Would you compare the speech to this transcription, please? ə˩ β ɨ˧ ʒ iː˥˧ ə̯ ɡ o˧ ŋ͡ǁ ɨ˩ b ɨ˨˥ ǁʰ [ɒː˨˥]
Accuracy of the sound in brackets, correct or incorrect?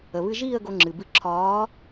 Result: correct